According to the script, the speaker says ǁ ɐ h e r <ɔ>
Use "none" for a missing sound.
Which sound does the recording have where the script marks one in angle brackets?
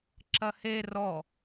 ɔ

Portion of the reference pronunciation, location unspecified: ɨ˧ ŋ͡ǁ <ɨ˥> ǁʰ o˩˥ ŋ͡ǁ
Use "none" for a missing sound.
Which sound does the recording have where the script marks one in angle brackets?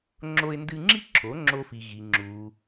i˥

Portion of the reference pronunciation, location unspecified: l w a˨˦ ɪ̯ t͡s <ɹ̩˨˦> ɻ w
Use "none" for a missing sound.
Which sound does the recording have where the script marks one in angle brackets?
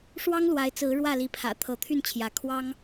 ɹ̩˨˦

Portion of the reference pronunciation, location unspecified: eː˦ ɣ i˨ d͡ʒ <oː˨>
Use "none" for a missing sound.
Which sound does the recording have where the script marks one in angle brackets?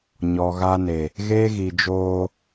oː˦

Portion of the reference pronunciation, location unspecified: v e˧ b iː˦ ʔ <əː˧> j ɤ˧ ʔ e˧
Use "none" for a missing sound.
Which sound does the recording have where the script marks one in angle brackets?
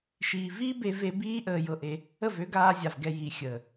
əː˧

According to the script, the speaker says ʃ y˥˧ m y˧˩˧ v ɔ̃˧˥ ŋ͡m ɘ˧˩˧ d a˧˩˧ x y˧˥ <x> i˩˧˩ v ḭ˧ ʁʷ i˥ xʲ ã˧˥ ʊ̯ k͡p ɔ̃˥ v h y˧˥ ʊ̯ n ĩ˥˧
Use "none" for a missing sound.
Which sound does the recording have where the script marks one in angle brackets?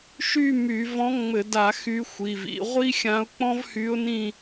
xʷ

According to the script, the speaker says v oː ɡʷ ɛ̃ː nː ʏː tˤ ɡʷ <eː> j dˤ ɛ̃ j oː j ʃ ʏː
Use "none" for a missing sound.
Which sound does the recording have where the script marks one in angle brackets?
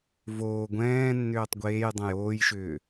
eː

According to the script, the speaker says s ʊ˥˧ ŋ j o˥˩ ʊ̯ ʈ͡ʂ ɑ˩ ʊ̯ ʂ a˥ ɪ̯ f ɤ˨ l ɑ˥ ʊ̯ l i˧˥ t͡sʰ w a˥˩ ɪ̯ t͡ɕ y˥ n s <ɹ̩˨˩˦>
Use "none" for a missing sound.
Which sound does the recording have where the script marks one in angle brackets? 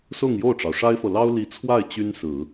ɹ̩˨˩˦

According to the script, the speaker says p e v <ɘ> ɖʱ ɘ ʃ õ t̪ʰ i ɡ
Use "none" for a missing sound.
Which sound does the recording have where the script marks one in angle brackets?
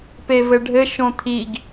ɘ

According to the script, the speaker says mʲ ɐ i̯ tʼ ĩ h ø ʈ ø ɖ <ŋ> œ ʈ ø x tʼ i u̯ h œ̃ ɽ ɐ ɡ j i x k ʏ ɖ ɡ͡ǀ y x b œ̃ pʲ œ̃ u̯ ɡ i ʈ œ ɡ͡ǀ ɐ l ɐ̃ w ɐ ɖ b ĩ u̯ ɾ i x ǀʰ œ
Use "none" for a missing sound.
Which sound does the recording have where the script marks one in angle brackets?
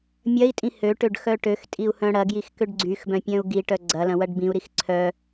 x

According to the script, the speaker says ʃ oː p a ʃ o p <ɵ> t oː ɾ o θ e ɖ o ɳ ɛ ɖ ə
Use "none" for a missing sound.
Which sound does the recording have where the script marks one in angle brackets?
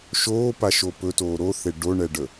ɵ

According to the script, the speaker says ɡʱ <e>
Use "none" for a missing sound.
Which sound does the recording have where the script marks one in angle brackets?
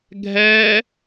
ɛ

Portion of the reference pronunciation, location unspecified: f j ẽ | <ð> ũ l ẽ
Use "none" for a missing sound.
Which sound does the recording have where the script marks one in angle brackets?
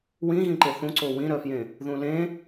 ð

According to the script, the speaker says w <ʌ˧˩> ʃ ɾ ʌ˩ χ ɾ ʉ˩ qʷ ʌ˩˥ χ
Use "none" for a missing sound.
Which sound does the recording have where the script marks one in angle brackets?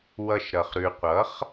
ʌ˧˩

